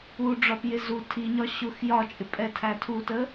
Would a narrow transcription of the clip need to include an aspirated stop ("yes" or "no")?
yes